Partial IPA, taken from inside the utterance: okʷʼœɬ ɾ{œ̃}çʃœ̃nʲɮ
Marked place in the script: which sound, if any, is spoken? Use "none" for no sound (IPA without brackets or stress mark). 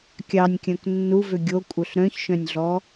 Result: œ̃